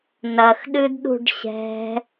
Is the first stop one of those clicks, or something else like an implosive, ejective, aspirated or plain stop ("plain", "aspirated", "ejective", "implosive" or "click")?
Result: implosive